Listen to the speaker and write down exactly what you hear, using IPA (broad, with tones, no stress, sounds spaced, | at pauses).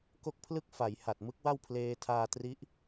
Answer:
k o˥˩ k̚ pʰ l ɯ˥˩ k̚ f a˩˦ j h a˨˩ t̚ m ɯ˦˥ k̚ w a˥˩ w pʰ l eː˧ tʰ aː˧ t r i˦˥ ʔ